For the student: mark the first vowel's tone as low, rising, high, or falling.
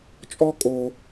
high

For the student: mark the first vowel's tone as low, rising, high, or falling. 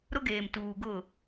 high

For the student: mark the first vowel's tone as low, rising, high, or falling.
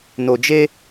low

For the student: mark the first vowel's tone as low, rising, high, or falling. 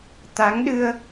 rising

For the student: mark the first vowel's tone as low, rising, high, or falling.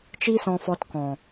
high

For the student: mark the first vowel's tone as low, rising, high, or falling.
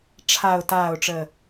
low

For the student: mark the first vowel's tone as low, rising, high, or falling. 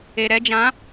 low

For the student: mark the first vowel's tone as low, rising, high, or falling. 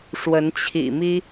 rising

